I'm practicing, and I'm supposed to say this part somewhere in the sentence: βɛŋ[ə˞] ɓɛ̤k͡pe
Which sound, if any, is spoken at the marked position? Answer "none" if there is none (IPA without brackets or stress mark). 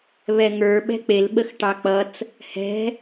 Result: ə˞